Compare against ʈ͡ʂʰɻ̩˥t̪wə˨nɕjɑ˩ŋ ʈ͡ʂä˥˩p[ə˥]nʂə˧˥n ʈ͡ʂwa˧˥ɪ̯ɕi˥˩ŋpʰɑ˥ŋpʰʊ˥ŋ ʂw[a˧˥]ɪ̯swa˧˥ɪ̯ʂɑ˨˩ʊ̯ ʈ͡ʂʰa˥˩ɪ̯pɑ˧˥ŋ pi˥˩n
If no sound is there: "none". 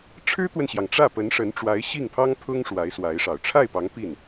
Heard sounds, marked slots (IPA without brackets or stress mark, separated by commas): ə˧˥, a˧˥